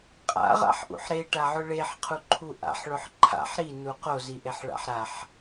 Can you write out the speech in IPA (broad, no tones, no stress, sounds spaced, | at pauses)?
qʼ a̰ ʁ a̰ ħ ʔ ṵ ħ ɾ e ʈ a ʕ ʊ ɭ e ħ qʰ u ǃʰ u ʔ a̰ ħ ɭ ʊ ħ ǃʰ a̰ ħ ɾ i n u q o z i ʔ e ħ ɭ a̰ ħ ɾ a ħ